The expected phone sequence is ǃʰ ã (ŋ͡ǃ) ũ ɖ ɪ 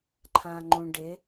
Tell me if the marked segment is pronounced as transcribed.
yes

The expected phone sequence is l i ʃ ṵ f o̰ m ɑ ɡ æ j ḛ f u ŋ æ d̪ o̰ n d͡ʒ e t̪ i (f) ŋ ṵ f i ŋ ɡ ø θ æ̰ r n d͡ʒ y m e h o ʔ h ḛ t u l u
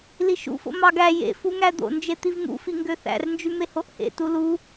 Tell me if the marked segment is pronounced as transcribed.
no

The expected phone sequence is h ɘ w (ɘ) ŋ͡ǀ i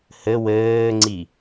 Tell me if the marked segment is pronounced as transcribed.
no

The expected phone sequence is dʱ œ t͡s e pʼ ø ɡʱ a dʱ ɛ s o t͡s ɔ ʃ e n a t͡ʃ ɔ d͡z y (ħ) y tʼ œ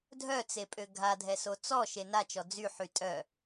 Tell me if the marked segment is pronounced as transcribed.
yes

